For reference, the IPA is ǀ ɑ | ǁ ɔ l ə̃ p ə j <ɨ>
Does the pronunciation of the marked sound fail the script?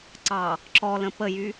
yes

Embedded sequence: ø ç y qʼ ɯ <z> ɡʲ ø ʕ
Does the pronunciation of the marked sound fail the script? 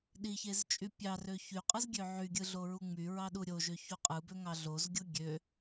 no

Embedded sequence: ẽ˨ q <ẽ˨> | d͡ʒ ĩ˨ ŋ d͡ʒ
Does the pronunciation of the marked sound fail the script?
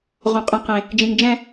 no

